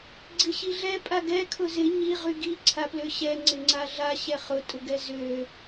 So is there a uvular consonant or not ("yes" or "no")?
yes